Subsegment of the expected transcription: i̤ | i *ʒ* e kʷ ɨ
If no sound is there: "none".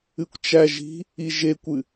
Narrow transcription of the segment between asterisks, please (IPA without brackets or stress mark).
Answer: ʒ